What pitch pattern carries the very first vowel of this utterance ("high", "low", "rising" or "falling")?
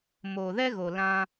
low